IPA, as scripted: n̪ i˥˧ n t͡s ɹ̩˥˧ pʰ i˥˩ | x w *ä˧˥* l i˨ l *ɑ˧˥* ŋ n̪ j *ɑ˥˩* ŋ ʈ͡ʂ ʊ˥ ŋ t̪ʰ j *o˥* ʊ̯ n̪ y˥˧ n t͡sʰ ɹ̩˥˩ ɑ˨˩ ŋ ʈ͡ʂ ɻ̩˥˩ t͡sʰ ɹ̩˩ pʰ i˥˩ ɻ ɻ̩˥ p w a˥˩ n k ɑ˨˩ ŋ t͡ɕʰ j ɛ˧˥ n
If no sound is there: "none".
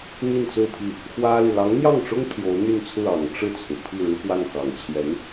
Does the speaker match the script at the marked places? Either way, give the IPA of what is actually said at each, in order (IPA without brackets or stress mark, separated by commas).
ä˥, ɑ˧˥, ɑ˥˩, o˧˥